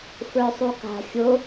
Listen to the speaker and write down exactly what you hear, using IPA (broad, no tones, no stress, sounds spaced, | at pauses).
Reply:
f ə˞ sˤ u k a̤ xʲ o